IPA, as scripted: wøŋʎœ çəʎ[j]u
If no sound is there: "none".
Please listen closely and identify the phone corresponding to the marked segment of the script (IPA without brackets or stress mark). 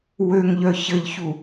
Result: ç